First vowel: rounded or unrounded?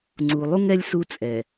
rounded